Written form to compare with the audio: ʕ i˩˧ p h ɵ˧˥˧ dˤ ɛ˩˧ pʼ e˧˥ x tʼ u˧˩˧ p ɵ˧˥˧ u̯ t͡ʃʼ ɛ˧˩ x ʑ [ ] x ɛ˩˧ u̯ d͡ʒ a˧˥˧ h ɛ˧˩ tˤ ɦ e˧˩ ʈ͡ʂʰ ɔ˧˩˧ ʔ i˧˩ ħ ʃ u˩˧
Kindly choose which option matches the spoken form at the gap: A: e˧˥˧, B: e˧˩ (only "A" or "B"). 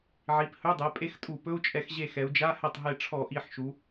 B